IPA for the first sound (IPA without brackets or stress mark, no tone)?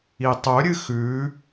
i